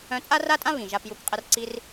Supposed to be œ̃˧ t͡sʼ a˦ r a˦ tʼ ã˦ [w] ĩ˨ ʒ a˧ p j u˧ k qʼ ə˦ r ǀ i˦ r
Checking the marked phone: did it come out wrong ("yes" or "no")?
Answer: yes